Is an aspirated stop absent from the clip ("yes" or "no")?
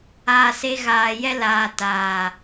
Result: yes